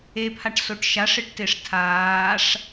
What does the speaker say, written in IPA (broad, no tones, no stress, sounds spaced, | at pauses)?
e pʰ a ʈ s o ʈ ʃ a ʂ ɪ ʈ t e ʂ tʰ aː ʂ